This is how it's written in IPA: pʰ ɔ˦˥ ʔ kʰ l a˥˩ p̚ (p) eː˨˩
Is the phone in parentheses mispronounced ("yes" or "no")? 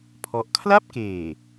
yes